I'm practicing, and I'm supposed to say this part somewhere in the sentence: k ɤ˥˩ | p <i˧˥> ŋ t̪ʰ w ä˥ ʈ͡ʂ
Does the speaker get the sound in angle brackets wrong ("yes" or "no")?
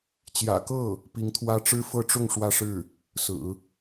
no